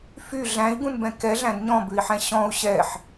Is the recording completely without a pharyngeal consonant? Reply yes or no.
no